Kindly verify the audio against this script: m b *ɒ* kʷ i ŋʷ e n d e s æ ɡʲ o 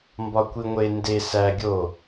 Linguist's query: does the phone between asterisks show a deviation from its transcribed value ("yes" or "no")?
no